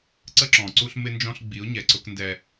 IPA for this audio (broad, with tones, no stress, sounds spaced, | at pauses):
ǀ ə˦ ǁ ɔ̃˨ ǀ u˦ ɬ m ɪ˦ n d͡ʒ ɔ̃˦ ɬ ɡ͡b i˨˦ ʊ̯ ɲ ɛ˨ ǀ ʊ˦ k n d ɛ˦